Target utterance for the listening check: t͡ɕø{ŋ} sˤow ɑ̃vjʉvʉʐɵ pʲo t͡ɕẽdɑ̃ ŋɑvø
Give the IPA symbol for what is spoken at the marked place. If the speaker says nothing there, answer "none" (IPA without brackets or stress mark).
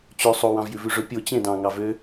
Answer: none